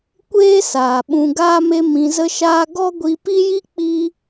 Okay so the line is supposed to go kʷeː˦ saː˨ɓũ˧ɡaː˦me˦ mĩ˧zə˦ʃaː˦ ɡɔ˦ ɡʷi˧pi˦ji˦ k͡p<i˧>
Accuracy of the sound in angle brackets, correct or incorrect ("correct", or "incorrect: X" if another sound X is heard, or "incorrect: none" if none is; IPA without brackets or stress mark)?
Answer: incorrect: i˦